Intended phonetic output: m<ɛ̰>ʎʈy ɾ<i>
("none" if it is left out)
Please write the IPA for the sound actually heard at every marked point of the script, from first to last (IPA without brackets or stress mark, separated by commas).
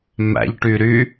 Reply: æ̰, y